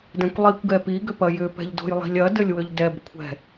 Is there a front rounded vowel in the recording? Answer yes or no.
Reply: yes